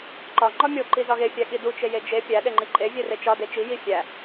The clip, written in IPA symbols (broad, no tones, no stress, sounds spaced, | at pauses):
ǃ ɒ ŋ͡ǃ ɒ mʲ o ǃ i z ɒ ɣ e fʲ æ ɠ i d u t͡ʃ e j e d͡ʒ e pʲ æ ɗ e ŋ͡ǃ i ǃʼ e vʲ e r e t͡ʃ ɒ d e t͡ʃ i j i fʲ æ